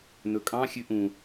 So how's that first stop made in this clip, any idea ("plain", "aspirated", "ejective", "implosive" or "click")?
ejective